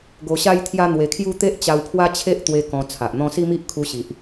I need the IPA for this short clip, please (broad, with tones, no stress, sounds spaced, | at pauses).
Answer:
ɡ o˧ ɕ a˦ j t̪ʰ j a˦ n̪ w e˧ kʰ j u˦ t̪ e˦ ʔ t͡ɕ a˧ w pʰ w a˦ t͡ɕʰ e˦ ʔ t̪ w e˧ k ɔ̃˧ t͡sʰ a˨ ʔ n̪ ɔ̃˦ s i˦ m i˦ ʔ kʰ u˧ ɕ i˨ ʔ